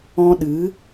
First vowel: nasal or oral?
nasal